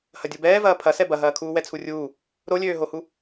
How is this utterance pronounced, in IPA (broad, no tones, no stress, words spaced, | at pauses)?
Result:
hɐdʲobɛːvɐː pʰɐsɛ bɐɦɐːkʰuː wɛt͡sʰurʲuː | ɾolʲøːɦohu